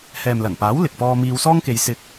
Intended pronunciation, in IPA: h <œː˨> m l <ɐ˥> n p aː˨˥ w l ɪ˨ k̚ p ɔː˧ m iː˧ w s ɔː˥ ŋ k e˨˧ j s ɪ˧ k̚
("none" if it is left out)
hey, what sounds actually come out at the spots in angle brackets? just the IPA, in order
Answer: ɛː˨, ɐ˨˩

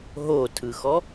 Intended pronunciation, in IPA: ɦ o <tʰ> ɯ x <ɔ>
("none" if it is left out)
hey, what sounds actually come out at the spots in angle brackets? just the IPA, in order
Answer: tʰ, ɔ

